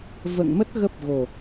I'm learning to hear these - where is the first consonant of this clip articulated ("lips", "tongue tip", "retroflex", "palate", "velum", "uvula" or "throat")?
lips